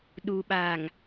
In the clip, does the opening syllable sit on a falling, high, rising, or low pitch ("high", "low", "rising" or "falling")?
low